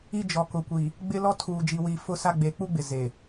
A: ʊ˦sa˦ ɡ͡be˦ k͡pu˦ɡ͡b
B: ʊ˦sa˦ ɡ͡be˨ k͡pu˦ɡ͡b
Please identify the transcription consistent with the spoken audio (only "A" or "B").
B